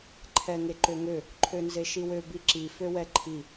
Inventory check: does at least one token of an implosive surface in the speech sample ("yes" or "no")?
no